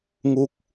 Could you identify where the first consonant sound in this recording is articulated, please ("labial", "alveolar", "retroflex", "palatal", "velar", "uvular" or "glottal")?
velar